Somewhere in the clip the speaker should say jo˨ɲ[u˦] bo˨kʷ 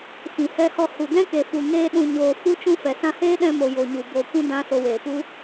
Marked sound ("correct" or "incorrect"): incorrect